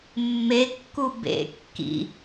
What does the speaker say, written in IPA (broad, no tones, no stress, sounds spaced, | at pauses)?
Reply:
mː e kː u b ḛ kː ḭ